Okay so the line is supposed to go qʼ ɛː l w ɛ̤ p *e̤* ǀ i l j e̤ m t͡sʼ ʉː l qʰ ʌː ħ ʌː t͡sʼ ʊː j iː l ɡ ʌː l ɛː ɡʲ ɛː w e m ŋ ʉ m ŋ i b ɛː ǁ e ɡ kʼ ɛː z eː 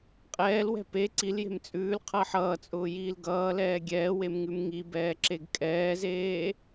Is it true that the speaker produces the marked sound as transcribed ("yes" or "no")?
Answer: no